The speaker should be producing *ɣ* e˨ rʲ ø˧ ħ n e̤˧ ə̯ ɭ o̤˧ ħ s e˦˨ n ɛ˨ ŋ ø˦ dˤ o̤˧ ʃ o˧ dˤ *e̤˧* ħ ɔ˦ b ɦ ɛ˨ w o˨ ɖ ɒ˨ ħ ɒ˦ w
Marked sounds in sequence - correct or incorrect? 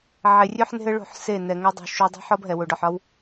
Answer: incorrect, incorrect

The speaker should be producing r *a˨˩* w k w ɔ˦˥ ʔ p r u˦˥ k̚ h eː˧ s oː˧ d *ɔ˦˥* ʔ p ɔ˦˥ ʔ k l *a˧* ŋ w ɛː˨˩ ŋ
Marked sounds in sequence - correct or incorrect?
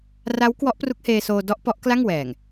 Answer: incorrect, correct, incorrect

